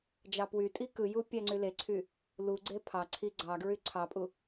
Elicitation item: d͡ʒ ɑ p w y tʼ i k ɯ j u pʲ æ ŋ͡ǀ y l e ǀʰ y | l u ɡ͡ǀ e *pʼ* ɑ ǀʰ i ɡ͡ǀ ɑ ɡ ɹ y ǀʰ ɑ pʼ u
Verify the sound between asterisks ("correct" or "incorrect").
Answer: incorrect